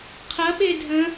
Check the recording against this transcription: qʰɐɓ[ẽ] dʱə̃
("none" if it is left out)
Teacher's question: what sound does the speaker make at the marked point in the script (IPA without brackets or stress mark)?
e